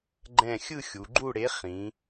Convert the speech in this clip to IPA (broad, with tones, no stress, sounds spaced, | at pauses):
ɡ͡ǃ ɛ̃˦˨ xʲ ɯ˦˨ xʲ u˩˧ ɡ͡ǃ u˦˨ ɽ e˨˥ χ ĩ˩˧